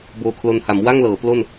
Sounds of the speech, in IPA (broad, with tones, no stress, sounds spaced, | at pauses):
b oː˧ kʰ l o˧ n h a˩˦ m w a˥˩ ŋ l ɤː˩˦ p l o˥˩ n